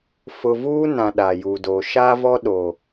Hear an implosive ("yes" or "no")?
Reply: yes